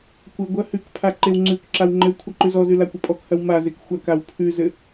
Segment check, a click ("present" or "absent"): present